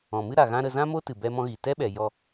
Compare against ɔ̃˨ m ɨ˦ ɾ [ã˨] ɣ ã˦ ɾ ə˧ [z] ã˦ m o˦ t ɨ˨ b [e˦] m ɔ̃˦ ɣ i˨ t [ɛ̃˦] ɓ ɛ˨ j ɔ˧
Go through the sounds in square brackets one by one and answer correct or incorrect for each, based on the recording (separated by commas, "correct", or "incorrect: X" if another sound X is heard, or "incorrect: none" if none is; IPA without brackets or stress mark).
incorrect: a˨, correct, incorrect: ɛ˦, incorrect: ɛ˦